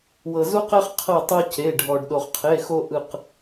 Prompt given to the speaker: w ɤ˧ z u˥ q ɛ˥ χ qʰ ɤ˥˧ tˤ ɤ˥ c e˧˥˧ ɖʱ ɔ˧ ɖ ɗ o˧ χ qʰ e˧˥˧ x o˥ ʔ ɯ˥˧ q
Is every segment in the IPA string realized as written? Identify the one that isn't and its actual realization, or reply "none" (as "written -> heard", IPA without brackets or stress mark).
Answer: none